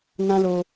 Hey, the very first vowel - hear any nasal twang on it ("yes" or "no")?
yes